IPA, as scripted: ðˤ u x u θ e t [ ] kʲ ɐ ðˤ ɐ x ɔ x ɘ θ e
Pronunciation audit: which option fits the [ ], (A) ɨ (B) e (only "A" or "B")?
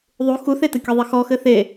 A